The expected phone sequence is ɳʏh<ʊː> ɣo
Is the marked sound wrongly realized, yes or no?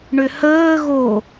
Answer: yes